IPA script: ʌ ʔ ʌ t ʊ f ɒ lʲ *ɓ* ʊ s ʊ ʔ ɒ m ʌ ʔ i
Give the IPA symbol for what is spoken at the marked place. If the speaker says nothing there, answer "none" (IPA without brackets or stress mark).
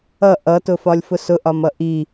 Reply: f